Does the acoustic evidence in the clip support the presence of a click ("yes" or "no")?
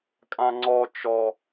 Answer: yes